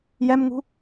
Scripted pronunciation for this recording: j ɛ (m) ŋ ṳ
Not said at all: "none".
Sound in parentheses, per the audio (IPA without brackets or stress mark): m